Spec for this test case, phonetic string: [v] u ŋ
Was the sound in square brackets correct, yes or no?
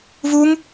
yes